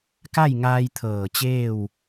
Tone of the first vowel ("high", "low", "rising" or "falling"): falling